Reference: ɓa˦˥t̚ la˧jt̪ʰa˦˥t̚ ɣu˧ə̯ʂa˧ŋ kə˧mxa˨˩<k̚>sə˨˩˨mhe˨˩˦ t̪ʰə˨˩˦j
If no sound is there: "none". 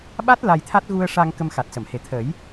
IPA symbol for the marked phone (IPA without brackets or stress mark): t̚